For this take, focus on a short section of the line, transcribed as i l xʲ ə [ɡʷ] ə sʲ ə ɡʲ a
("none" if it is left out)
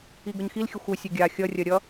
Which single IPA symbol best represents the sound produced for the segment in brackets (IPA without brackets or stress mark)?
xʷ